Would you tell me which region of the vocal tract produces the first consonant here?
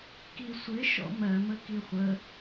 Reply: velum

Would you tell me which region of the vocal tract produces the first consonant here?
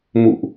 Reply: lips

